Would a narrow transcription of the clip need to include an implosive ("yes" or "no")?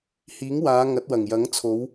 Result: no